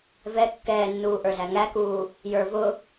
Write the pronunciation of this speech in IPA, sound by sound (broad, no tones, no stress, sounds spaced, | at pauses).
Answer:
v ɛ kː ɛː nː uː ʔ ə˞ z æ ŋ æ k uː | j ə˞ v ʊ